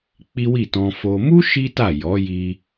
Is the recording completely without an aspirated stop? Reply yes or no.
yes